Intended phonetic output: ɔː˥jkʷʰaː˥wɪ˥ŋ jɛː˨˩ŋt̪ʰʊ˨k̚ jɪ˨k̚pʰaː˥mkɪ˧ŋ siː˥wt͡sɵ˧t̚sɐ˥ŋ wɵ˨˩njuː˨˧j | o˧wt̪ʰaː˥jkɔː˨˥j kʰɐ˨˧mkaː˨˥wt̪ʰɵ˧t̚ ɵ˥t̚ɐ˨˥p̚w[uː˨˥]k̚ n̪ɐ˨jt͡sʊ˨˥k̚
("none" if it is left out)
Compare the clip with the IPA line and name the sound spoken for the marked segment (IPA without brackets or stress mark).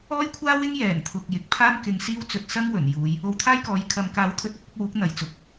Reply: uː˨˥